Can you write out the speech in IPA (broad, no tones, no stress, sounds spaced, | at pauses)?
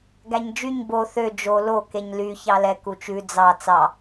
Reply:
ɡ æ ɲ d͡ʒ y ɲ b o θ ø d͡ʒ o l o k e ɲ l y ç ɑ l ɛ k u t͡ʃ ʉ d͡z ɑ t͡s ɑ